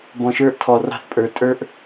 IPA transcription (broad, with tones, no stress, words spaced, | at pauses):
bɔ̃˨ʃə˞˦ʔtʰɔ˨ rɑ̤˦θpʼə˞˨ tʼə˞˦ʔ